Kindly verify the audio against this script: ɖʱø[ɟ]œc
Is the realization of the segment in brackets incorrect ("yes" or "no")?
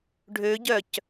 no